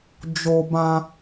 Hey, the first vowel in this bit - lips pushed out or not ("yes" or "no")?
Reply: yes